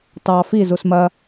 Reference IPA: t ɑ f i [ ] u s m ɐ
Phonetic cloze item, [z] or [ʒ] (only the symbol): z